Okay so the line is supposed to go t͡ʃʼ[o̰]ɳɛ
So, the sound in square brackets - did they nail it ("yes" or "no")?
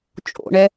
yes